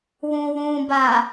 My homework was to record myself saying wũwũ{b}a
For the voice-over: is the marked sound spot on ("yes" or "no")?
yes